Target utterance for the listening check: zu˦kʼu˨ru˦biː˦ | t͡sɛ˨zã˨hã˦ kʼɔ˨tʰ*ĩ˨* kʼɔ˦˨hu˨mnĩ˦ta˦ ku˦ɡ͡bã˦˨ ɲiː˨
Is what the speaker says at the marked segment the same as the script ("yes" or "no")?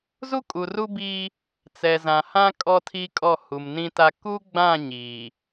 no